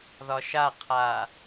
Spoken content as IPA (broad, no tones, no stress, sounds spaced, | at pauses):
ð ɒ ʃ a qʰ aː